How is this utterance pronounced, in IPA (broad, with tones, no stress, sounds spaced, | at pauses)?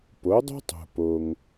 p o˩˥ dˤ ṳ˥ tˤ ṳ˩ p o˩ ŋ